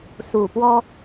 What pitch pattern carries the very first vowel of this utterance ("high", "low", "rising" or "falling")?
low